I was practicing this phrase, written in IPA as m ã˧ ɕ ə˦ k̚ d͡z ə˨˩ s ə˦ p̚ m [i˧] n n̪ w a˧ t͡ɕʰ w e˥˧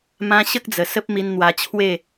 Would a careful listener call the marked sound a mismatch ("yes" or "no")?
no